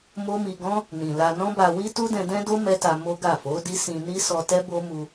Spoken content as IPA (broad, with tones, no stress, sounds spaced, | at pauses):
m o˦ m i˧ ɡ ɔ̃˦ | n ĩ˨ l a˧ n ɔ̃˦ b a˧ w i˦ t u˦ d ɛ̃˧ d ɛ̃˦ d o˦ m ɛ˦ t a˧ m o˦ ɡ a˦˨ f o˨˦ d i˦ s ĩ˧ n i˦ s ɔ˧ t ɛ˦ b o˦ m u˧